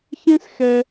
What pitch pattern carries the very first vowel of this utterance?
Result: high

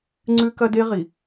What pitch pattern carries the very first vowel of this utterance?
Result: high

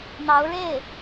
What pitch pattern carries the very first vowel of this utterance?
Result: rising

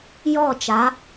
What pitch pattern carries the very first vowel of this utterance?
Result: falling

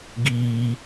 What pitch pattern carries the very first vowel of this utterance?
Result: high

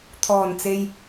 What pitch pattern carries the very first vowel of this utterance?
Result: low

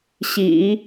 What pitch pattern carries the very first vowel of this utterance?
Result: low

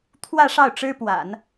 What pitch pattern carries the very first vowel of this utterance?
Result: falling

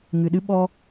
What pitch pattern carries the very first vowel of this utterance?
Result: low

